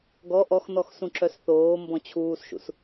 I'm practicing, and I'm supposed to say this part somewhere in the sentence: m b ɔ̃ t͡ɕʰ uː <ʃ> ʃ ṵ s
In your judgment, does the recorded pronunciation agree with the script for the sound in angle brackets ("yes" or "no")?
no